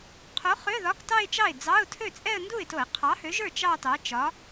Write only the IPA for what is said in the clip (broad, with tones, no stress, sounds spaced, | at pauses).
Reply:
qʰ o˨˥ χ ø˧˥˧ ð ɒ˧˥˧ k t ɑ˥˧ ɪ̯ t͡ʃ ɑ˥˩ ɪ̯ d͡z ɑ˧˥˧ ʊ̯ tʰ ø˥˩ t͡sʼ ɛ˥˧ ə̯ n d u˥˩ ɪ̯ t o˧˩˧ ɪ̯ qʰ ɑ˨˥ h ø˨˥ ʒ ə˞˥˩ t͡ʃ ɑ˥˧ t ɑ˨˥ t͡ʃ ɒ˨˥